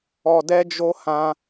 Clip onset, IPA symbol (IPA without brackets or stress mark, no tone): ɔ